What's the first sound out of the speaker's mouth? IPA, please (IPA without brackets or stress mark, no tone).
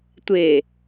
tʷ